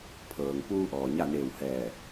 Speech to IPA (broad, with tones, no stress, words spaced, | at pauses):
pʰɤː˩ŋ puː˧ ʔɔː˩ɲa˥˨neː˧˩whɛː˧˩